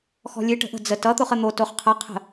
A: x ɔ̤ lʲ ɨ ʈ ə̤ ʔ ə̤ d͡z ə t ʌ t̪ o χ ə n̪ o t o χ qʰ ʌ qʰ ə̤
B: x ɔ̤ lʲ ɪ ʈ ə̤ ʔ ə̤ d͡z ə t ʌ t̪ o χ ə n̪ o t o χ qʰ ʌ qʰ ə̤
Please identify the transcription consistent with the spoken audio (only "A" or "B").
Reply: A